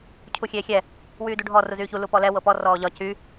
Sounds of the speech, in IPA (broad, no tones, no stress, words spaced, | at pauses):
cʰuxʲeːxʲɛ | wyːduɖʱɔ ruzyːçu lupɔlɛ wɤpɔ rɔːʎɒ cy